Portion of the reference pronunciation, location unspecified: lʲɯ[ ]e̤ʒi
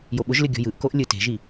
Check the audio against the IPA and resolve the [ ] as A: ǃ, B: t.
B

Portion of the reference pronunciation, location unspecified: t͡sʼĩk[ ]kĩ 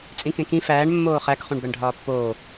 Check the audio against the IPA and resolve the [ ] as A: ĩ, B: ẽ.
B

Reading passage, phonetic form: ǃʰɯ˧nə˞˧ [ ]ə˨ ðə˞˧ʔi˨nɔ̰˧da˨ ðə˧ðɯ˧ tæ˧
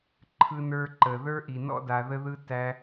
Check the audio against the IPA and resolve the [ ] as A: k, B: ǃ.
B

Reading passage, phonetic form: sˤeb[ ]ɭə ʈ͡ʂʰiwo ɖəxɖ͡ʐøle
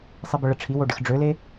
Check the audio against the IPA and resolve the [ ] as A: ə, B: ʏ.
A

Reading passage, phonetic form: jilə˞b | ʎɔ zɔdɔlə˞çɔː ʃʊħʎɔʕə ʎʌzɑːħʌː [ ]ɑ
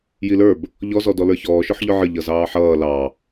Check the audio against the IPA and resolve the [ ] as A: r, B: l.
B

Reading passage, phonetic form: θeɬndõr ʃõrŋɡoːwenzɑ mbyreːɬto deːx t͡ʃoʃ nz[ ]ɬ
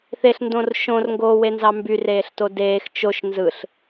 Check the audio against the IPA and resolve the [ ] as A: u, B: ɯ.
B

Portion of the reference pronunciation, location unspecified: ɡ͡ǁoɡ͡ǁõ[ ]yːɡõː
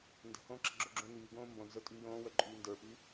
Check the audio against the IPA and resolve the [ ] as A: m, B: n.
B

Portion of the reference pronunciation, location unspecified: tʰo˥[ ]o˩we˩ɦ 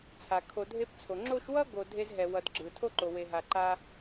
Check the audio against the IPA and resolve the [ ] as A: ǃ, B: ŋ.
A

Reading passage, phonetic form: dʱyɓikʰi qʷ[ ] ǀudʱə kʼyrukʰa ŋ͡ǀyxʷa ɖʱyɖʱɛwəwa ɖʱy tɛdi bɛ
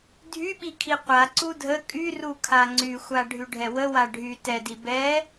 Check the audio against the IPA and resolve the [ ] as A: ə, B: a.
B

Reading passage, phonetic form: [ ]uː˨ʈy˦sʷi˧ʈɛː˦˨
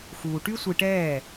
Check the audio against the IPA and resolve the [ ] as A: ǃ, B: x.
B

